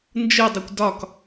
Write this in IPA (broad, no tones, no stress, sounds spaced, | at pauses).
n d͡ʒ ɯ dˤ ʌ kʷ d ɒ k